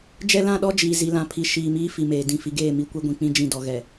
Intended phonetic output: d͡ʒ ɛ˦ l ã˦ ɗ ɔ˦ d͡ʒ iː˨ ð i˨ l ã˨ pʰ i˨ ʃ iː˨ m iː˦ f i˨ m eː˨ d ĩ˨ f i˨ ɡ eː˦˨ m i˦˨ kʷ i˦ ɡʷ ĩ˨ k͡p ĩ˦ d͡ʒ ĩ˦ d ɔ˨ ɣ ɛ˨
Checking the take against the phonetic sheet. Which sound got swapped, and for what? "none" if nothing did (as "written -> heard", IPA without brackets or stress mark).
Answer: ð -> z